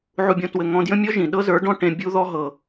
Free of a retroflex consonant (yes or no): no